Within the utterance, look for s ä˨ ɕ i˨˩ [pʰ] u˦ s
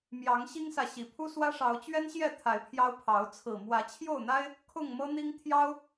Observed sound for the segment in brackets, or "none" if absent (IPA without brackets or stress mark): pʰ